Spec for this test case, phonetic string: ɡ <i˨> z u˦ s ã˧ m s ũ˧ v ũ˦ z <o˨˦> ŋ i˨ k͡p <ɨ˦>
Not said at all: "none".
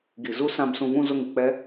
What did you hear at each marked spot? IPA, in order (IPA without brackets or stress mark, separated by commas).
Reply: i˨, o˧, ɛ˦